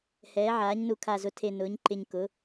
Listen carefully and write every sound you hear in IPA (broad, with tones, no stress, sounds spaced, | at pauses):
h ɛː˩˧ ʕ aː˩˧ ɲ n u˨˩ kʰ a˨˩ z ʊ˩˧ tʰ e˨˩ n ʊː˩˧ ɲ ǃ ɪ˨˩ ɲ k ʊ˩˧